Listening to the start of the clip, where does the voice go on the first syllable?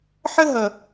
high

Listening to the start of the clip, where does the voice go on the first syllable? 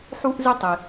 high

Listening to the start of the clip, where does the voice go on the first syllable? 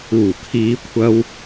low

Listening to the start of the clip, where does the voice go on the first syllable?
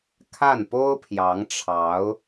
falling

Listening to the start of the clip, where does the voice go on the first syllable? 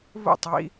falling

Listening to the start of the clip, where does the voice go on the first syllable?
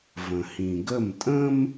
low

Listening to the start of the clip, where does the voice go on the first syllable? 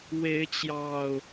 rising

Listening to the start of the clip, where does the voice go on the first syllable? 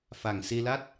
low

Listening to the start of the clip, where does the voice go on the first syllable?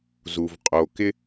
low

